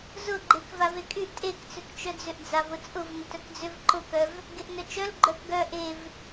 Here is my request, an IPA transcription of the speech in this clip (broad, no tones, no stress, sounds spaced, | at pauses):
z ʊ ɡ͡ǃ e k v a v e kʼ y ʔ tʼ e k t͡s ʏ k t͡ʃ œ d͡z ʏ ʔ d͡z a v ʊ t͡sʼ ʊ v n ʊ t œ k d͡z ʏ v ǃ ʊ k œ v | ɡ e ʔ n œ t͡ʃ œ l ɡ͡ǃ œ k ɡ œ ʔ e v